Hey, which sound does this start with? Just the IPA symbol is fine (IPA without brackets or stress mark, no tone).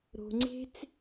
ɾ